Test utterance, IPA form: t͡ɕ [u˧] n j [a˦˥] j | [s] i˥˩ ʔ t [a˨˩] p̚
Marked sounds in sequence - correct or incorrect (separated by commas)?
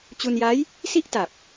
correct, correct, correct, correct